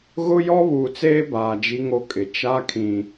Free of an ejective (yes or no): no